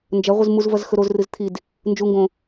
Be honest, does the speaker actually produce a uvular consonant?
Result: yes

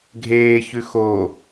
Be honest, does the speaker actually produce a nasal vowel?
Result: no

